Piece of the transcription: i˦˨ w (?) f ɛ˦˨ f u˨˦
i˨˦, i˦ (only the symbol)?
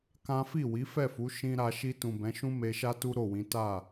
i˨˦